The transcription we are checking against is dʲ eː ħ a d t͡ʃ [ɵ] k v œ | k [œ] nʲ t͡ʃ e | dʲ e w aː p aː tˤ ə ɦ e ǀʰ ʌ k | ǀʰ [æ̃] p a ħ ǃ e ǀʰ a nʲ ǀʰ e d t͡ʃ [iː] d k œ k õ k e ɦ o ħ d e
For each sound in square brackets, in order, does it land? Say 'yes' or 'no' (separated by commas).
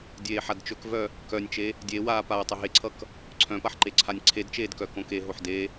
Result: yes, yes, no, no